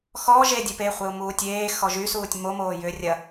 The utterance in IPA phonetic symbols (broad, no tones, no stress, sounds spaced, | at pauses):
x ɔ ʒ e dʲ e p e χʷ e ʊ̯ m uː tʲ eː x ɔ ʒ y s uː tʲ m o m oː j ʏ rʲ ɐ